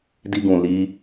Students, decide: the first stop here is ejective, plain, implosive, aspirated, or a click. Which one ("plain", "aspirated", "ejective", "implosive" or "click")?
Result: plain